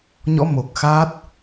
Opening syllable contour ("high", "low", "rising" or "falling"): rising